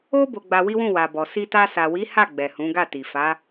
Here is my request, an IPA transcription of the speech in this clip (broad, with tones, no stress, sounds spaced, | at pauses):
o˦ b o˧ ɡ͡b a˧ w i˦ w ũ˦˨ w a˨ b ɔ˨ s i˧ t a˧ s a˨ w i˨˦ h a˦˨ ɡ͡b ɛ˨ h ũ˨˦ ɡ a˦˨ t i˨ f a˨˦